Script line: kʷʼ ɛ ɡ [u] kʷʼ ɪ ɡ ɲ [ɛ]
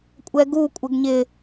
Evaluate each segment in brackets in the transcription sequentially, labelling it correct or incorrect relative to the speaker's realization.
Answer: correct, incorrect

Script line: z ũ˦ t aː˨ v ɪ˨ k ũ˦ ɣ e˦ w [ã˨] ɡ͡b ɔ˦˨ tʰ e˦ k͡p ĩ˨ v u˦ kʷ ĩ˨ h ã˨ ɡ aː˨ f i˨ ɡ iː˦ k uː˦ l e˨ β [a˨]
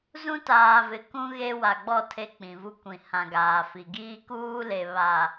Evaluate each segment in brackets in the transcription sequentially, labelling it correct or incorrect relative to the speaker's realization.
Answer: incorrect, correct

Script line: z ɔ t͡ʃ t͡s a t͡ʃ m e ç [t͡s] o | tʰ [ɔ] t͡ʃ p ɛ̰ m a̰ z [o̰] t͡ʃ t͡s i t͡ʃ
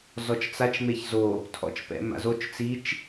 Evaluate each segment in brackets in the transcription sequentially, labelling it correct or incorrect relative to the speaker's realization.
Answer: incorrect, incorrect, incorrect

